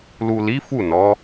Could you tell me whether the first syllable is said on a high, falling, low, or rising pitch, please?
low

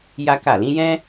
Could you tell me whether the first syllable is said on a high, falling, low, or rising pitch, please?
high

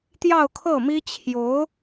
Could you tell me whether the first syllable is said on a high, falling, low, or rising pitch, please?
falling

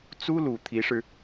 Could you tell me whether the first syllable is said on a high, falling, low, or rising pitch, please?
high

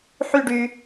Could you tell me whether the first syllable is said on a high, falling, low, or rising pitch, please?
falling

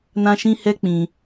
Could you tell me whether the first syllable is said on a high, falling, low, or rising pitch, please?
high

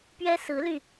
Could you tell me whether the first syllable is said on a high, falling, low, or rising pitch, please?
high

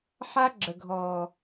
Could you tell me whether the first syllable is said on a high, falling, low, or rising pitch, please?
high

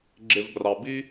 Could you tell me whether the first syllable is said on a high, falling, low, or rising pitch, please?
low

